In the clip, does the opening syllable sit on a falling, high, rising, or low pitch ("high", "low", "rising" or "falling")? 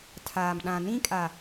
low